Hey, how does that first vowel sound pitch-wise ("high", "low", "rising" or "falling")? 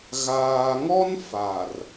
low